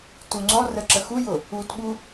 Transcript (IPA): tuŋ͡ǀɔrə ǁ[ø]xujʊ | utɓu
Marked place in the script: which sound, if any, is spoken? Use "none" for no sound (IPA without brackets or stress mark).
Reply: ə